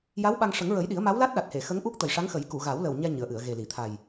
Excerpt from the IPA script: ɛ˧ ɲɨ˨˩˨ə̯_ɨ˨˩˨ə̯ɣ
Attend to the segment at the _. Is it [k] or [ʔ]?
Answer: ʔ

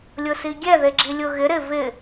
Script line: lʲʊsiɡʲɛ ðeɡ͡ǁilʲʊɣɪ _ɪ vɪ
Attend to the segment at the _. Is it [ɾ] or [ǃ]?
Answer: ɾ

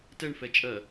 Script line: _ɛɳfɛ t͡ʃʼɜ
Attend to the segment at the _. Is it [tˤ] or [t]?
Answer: t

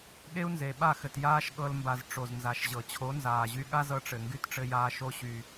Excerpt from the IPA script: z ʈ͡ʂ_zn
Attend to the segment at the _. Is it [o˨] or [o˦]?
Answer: o˨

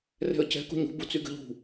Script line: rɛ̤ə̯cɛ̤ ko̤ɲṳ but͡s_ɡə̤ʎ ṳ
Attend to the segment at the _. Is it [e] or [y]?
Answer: y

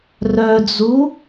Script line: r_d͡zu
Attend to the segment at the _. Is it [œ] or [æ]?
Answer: œ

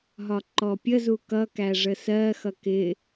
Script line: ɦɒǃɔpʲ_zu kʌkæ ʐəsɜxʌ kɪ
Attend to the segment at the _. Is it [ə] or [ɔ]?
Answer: ə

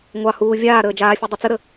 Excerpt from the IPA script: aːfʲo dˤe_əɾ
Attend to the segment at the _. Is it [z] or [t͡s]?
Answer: t͡s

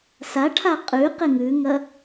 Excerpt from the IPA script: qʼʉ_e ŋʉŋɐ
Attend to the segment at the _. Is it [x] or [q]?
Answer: q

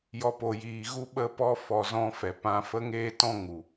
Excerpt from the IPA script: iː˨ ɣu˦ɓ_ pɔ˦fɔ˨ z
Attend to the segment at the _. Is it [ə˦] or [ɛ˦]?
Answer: ə˦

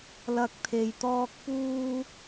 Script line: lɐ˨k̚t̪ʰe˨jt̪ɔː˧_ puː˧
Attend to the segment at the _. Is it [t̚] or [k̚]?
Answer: k̚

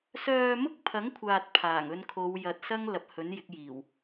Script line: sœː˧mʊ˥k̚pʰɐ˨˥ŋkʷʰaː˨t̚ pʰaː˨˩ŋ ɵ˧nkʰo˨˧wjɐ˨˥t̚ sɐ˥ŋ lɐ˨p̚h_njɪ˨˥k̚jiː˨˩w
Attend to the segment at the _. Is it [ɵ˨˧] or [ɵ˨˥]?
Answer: ɵ˨˥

